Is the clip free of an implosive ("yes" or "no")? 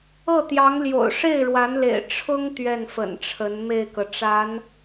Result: yes